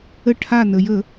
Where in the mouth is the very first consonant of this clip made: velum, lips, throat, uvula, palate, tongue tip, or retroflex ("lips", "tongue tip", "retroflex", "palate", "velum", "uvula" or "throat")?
retroflex